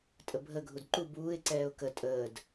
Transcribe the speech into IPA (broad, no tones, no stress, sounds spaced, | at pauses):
tʼ ə bʱ ə ɡʱ u d ǃ u b uː ɪ̯ ǀ ɛː ʊ̯ k ə tʼ əː d